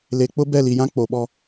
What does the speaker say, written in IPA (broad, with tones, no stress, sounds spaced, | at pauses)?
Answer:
l e˨ k͡p ʊ˦ b ɛ˦˨ l i˨ j ã˦ k͡p o˨ ɓ ɔ˦